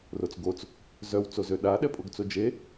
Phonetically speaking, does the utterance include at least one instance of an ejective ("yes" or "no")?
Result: yes